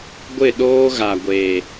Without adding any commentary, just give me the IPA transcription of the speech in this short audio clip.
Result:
ɡʷ ɪ˦˨ ɗ oː˦ ɣ a˨ ɡʷ eː˨

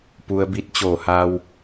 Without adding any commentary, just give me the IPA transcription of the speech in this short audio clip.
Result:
p u˧ ə̯ b i˧˥ t̚ t͡ɕ oː˧˩ h a˧ w

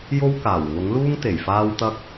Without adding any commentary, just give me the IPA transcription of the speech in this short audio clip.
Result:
j o˥ w k aː˨˩ w ŋ ʊ˨˥ ŋ l uː˥ ŋ t̪ e˨˩ j f aː˥ w t̪ ɐ˥ k̚

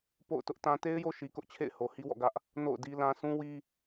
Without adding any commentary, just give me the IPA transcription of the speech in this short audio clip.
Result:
p o̰˦˨ ʊ̯ t ʊ˦ ʔ t ã˦ t e˦ ɪ̯ j o˦ ʃ i˨ k ʊ˦ ʔ t͡ɕʰ ḛ˦˨ ɪ̯ h o˨ h i˦ w ɔ̰˦˨ ɡ ä˦ ʔ | n o̰˦˨ ʊ̯ d i˦ l ã˦ sʰ ũ˦ w i˦

